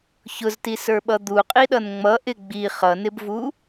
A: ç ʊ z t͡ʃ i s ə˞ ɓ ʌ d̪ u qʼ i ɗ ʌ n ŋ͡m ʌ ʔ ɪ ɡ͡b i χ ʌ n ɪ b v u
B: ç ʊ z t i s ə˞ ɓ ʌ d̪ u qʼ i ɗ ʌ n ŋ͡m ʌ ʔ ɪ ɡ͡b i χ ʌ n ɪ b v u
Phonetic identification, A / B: B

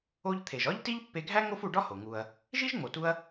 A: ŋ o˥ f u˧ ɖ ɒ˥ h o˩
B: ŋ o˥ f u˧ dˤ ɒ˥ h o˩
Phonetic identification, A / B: A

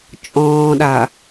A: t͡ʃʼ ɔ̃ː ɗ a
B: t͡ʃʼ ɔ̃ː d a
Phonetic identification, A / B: A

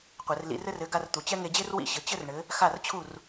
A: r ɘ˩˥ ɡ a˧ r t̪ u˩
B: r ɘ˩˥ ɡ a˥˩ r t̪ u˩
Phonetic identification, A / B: A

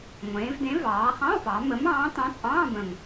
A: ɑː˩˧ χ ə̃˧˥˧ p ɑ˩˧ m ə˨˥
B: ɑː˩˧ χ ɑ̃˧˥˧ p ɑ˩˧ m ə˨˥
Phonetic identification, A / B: B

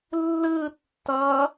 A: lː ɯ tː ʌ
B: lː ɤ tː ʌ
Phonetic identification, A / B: A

